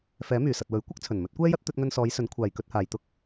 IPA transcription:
fɛː˨˥myː˨˩sɐ˨t̚ wɵ˨˥ɥkʷɐ˥k̚t͡sʰɵ˨˩n mɵ˨˥t̚kʷɛː˥jɐ˥t̚ t̪ɵ˧t̚ŋɵ˧nsɔː˨˧jsɵ˨˥n kʷʰaː˨jkɵ˧t̚haː˨jt̪ʊ˥k̚

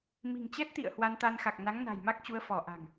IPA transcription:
mi̤˨˩ŋt͡ɕɛ˦˥t̚t̪ḭ˧˨ə̯ hwa˧nt̪a˧n xa˨˩k̚na˨˦ŋ na̤˨˩jma˦˥k̚t͡ɕu˨˦ə̯fɔ˧˩ ʔa̤˨˩ŋ

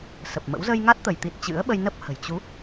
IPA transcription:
sə˨˩p̚mə̰˧˥w zə˧jŋa˦˥t̚t̪ə˧˩jt̪i˨˩t̚ t͡ɕɨ̰˧˥ə̯ɓə˧jnə˦˥p̚hə̤˨˩j t͡ɕu˨˦

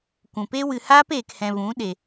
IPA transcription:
kʷũ˨pe˦wɨ˧ haː˦peː˨khɛ̃˨vũ˨˦ ɗe˧

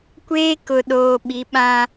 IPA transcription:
kʷeː˦kʊ˨ɗoː˨ ɓi˨˦ɓã˦

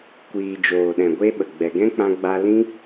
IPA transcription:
kʷiː˨d͡ʒoː˨ɗɛ̃˨ ɡʷe˦ɓə˨ ɡ͡bɛ˨ɡɛ̃˦k͡pã˧ɡ͡ba˧ lĩ˦

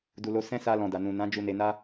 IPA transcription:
du˨lo˧ sɛ̃˦ sa˧lɔ̃˨ da˨nũ˨ nã˨˦ d͡ʒu˧ne˧ na˦

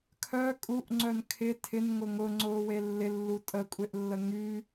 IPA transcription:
kʰœ kʼuʔŋ͡ǀœn kʰɪ tʰɪnŋʊ ŋʊŋ͡ǀʊːwe lːɪlːu tʼəkʷʼeʔlːə ŋy

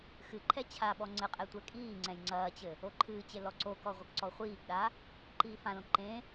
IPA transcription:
xɨǃʰɛ t͡ɕʰaɓɔ ŋ͡ǀɘqʼɛ tʷɛkʼiːŋ͡ǀɛ̃j ŋ͡ǀɐːt͡ɕɘ | oǃʰɨːt͡ɕe lɔǀokɔ ʁʷɐkǀɔχʷiːɡɗa | ǃiːfãlõ ǃẽ

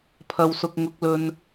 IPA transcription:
pʰɐ˨wsʊ˨k̚ ŋʊ˧k̚lɵ˧n

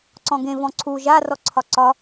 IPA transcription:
ǀɔ̃ɡẽ vɔ̃ǀʰu ʒa rɔǀʰɒǀɒ

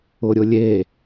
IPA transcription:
ʊɾʲʊlʲe

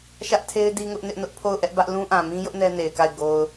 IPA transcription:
ʃä˦ʔtʰe˦ɪ̯ di˦ŋʊ˦ʔnɪ˦ʔnʊ˦ʔ pʰo˦˨ʊ̯ʔɛ˦ʔbä˦ʔ lũ˦ʔã˨ mĩ˦jʊ˦ʔ nɛ˦ne˨ɪ̯ka˦˨ɪ̯ ɡo˨ʊ̯

